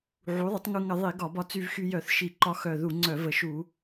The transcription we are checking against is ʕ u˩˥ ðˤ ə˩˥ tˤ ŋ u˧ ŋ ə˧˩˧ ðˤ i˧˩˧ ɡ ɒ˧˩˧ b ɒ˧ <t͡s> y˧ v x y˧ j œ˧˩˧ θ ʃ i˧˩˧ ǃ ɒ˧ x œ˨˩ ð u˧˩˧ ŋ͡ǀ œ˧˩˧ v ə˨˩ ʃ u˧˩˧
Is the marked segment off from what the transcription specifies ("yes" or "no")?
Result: no